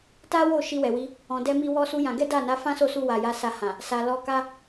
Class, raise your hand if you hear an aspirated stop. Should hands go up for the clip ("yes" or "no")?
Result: no